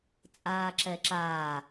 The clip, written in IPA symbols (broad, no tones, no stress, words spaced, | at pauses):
t͡sʼaːǁɛǁaː